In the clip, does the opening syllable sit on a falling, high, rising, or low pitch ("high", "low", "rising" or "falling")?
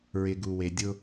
low